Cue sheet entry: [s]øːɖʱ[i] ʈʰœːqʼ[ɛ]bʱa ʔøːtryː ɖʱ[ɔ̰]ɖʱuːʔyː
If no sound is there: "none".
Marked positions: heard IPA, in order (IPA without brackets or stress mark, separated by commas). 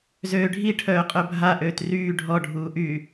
z, i, œ, ɔ